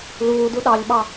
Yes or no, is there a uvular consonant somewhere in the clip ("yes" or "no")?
no